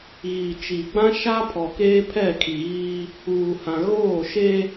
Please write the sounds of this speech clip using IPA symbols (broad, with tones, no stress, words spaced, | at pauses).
ɣi˨t͡ʃi˨ɡ͡bã˦ ʃa˦pʰɔ˨ keː˦pʰɛ˦˨kʰi˨ɣiː˦ | uː˨hã˨ ɣoː˦˨ʃeː˦